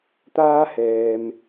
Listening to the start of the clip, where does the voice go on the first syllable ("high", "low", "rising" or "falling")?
high